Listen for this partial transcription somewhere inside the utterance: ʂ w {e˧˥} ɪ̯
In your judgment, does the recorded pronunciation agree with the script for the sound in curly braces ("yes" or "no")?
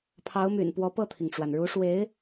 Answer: yes